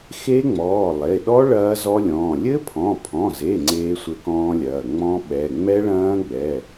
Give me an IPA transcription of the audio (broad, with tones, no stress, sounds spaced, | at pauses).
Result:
x e˦˥ ŋ͡m ɔː˩˧˩ lˠ e˩˧˩ ɗ ɔ˦˥ ɭ ɐː˦˥ z ɔ˦˥ lʲ ɔ̃ː˩˧˩ lʲ ɘ˦˥ pʰ ɔ̃˩˧˩ pʰ ɔ̃˩˧˩ z e˩˧˩ ŋ͡ǀ eː˦˥ sʷ ɘ˦˥ k ɔ̃ː˦˥ lʲ ɐː˩˧˩ ŋ͡m ɔ̃˦˥ ɓ ɛ˩˧˩ ŋ͡m ɛ˦˥ ɭ ɐ̃ː˦˥ ɡ͡b ɛ˩˧˩